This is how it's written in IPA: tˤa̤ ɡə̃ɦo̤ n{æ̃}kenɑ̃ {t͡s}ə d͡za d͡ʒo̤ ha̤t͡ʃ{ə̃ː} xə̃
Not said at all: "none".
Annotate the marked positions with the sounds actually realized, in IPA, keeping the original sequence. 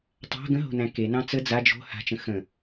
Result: æ̃, t͡s, ə̃

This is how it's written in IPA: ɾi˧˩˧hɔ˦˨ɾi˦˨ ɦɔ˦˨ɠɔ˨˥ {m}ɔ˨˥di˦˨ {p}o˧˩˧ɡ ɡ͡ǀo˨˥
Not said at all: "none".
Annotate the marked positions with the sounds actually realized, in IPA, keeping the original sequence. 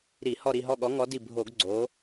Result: ŋ, bʱ

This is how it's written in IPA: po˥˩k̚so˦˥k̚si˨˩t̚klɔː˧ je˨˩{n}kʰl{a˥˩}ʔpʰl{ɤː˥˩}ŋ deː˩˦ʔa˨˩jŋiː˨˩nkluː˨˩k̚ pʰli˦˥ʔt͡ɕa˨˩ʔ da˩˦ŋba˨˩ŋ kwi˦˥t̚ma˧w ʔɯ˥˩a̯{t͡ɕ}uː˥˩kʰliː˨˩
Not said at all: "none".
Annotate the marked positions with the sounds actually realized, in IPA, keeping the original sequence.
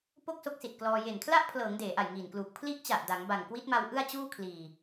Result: n, a˥˩, ɤː˩˦, t͡ɕ

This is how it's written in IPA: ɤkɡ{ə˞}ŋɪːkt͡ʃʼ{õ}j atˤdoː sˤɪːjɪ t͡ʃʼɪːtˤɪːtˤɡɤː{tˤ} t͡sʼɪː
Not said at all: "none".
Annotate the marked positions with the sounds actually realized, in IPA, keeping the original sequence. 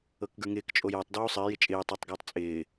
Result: ə˞, o, tˤ

